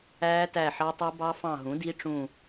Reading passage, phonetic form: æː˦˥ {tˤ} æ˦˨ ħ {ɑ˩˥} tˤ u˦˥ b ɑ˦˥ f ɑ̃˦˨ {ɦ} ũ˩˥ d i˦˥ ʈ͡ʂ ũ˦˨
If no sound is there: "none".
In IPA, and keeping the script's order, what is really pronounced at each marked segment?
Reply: t, ɑ˦˥, ɦ

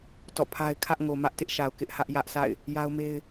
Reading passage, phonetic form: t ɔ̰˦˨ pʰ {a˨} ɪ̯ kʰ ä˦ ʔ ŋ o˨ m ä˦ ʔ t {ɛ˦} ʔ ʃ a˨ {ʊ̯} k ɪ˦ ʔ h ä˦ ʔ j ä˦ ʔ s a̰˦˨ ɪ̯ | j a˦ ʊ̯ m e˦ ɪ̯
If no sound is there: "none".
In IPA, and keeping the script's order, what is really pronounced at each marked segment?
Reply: a˦, ɪ˦, ʊ̯

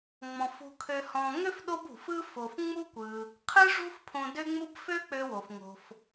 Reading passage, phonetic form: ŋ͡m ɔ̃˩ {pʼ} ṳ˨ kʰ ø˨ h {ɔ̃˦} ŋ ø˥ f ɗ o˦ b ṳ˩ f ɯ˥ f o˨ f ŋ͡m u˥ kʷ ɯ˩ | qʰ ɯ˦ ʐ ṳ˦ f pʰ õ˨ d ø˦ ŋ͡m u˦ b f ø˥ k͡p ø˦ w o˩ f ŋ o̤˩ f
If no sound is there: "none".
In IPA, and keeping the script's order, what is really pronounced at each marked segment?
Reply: f, ɔ̃˨

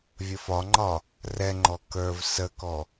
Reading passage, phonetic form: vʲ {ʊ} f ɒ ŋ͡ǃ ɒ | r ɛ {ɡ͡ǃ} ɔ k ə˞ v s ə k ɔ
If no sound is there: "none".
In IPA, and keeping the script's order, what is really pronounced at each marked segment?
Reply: ə, ŋ͡ǃ

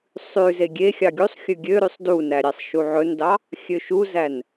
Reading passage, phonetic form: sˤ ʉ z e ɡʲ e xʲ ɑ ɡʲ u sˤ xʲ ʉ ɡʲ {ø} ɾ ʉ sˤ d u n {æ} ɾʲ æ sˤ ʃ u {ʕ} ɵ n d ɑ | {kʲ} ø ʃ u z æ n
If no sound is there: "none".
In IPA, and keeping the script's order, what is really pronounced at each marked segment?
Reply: ø, æ, ʕ, xʲ

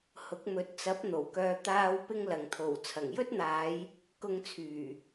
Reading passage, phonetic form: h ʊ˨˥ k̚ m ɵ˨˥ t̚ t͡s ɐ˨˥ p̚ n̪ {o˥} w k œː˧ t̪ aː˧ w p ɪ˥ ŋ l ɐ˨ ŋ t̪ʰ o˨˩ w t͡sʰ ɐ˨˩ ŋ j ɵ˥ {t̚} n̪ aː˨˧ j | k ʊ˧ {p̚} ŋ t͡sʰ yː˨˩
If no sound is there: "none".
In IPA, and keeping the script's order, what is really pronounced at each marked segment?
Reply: o˨˩, t̚, none

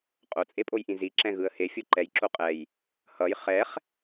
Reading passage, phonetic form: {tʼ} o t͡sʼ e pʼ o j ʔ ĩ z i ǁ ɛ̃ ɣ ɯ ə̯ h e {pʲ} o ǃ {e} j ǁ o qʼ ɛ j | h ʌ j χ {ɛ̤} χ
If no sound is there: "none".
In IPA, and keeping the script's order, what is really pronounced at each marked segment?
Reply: qʼ, fʲ, ɛ, ɛ

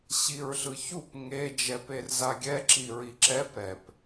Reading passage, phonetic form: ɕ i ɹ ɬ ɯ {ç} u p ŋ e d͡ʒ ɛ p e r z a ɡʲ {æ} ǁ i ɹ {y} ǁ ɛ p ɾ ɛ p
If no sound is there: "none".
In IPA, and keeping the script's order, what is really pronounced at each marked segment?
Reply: ç, ɛ, i

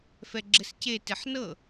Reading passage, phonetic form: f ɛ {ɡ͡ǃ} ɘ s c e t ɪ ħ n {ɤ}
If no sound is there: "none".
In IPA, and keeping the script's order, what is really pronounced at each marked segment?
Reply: ɡ͡ǁ, ɤ

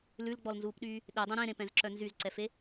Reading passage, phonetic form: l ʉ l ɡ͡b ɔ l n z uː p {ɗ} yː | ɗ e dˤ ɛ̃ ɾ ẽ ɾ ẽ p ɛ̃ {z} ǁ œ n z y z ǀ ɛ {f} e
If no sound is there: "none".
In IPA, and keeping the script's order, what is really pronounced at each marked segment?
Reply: ɗ, z, f

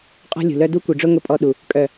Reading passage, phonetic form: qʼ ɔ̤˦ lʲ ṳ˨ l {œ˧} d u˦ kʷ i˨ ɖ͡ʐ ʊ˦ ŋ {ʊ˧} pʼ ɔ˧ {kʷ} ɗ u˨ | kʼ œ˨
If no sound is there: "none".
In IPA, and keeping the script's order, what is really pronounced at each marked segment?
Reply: œ˦, ʊ˧, none

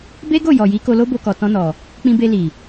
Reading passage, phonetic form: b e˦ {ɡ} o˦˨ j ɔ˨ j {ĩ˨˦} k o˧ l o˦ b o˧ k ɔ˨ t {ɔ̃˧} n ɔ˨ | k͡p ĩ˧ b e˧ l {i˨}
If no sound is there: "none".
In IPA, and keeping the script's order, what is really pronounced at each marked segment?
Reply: ɡ, i˨˦, ɔ̃˧, i˨

